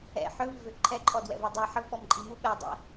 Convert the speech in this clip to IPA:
ɛ̰ ħ œ v i v ø ǃʰ ɛ ǃʼ ɔ d w ɛ̰ v ɛ dˤ ɛ ħ ə v ɓ ɔ m ǃʼ i m u ɓ ɛ dˤ ɛ̰

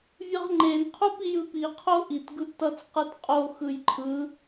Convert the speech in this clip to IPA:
vʲ ɯ ʁ ŋ͡ǃ e n qʰ u p i j ɯ p i qʰ o ʔ i t ɡ ɯ ʔ t ʌ t͡s q ɯ t qʼ o x ɯ j ǃʰ ɯ

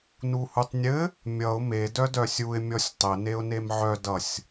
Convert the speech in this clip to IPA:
n u h u tˤ nʲ ɘ | mʲ ʌ ʊ̯ m e d œ d œ sʲ u ɪ̯ mʲ ɔ sʲ tˤ ɘ n e ʊ̯ n e m ʕ œ d ʌ sʲ

